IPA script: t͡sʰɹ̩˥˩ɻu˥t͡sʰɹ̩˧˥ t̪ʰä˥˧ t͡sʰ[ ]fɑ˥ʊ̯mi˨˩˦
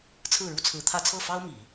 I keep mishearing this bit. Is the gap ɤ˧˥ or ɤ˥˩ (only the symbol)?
ɤ˥˩